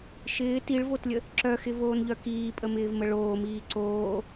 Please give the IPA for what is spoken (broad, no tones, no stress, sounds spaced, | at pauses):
ʃ ɪː t i ɭ v o t lʲ ə | ǁ œ x ɪ v oː n ʎ œ k iː pʼ ə m ɪː v m ə ɭ oː m iː ǀ oː